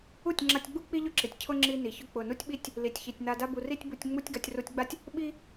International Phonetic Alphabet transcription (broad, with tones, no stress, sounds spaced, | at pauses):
u˦˨ tʲ ŋ͡ǁ a˧ tʲ ɡ͡b u˦ k͡p i˦ ʎ ʊ˦ ǁ i˨ tʲ cʰ ʊ˦ ŋ͡ǁ i˧ n i˨ ç ʊ˧ k͡p ʊ˨ n u˦ tʲ ɓ i˦ tʲ | l i˨ tʲ ç i˨ tʲ n a˧ d a˦ b u˧ r i˦ tʲ b u˧ tʲ ŋ͡m u˦ tʲ ɡ a˧ tʲ r u˧ tʲ ɡ͡b a˦ tʲ | ɓ i˦